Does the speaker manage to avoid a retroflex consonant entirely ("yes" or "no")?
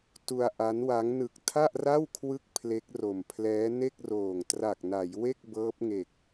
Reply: yes